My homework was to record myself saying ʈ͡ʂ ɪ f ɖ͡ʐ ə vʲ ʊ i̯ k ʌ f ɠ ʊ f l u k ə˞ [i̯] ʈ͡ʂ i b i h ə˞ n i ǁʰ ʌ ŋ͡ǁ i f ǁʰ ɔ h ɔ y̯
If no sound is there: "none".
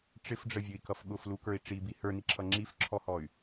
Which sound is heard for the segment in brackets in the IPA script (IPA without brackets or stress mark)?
i̯